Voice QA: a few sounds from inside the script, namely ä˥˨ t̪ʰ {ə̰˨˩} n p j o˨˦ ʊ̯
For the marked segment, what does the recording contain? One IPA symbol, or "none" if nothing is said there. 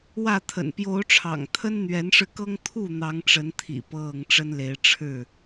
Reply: ə̰˨˩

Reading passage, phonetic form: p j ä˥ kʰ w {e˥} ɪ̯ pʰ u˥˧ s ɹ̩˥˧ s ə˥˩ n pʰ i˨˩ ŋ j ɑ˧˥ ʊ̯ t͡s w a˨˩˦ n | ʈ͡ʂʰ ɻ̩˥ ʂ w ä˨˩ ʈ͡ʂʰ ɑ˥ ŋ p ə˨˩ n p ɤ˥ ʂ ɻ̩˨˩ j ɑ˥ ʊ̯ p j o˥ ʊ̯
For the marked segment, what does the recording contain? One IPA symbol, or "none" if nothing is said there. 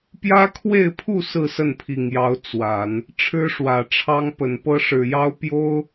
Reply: e˥˧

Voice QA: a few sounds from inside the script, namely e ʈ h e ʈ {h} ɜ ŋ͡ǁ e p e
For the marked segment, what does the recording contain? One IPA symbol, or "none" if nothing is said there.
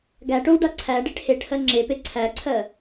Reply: h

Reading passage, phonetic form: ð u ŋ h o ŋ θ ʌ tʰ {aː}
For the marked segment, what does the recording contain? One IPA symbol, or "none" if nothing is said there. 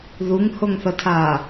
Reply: aː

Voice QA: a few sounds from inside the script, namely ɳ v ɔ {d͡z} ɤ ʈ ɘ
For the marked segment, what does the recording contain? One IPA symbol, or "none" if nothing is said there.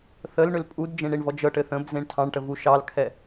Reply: d͡ʒ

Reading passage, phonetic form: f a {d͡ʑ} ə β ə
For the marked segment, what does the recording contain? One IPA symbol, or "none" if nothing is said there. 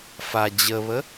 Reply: d͡ʑ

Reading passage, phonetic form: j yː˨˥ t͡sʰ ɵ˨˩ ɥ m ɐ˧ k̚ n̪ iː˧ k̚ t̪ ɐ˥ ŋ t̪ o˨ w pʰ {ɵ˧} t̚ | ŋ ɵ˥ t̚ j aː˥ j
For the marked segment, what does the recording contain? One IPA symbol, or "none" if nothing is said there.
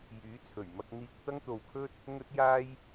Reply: ɵ˥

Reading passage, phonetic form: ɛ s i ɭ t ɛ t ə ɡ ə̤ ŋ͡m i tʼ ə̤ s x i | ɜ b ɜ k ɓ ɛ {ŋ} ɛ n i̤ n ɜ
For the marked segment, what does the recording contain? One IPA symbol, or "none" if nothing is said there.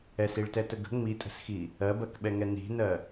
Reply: ŋ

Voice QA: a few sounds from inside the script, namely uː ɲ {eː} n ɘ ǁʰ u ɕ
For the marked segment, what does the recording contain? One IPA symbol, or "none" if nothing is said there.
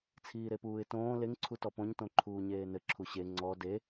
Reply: eː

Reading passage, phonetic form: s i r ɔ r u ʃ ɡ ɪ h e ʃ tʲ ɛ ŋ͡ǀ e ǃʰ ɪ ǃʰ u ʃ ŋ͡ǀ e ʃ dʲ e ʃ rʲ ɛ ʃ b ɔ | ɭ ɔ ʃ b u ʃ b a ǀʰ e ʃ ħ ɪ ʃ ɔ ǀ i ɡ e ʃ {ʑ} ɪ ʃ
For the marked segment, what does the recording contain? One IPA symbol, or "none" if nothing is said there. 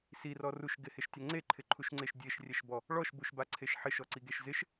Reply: z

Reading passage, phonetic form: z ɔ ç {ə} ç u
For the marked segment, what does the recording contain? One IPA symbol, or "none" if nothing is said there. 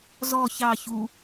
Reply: ɑ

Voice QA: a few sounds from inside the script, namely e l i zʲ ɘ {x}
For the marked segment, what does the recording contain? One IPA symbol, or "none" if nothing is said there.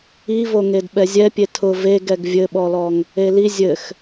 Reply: x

